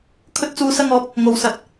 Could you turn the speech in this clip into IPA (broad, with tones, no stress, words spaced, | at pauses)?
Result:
kʰɵ˧t̚t͡suː˨sɐ˧ŋɔː˨˥p̚ | ŋo˨˧wsɐ˨˥t̚